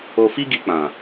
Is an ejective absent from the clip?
yes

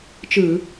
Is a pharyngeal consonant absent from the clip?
yes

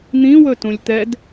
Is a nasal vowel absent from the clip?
no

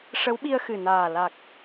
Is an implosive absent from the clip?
no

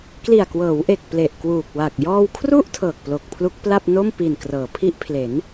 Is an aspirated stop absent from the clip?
no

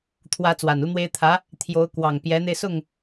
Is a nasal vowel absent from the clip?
yes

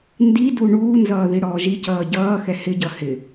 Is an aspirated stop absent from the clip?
yes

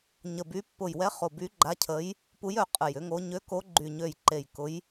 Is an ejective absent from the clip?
no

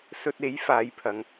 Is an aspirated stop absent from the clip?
no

